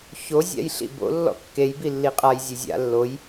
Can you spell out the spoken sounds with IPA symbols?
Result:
ço zʲa̰jɬḭbo̰ lːɔ̰kːej bilːiqʼaj zʲezʲa̰ lːoj

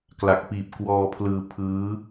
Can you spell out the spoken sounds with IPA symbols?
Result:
kla˨˩k̚piː˨˩p̚ kwɔː˧pʰlɯː˧ pʰɯː˦˥

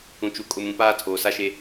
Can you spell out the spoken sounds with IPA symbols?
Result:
ũ˨t͡ʃu˨kʼʊ˨mũ˨ paː˦ tʰoː˨sa˦ʃe˦

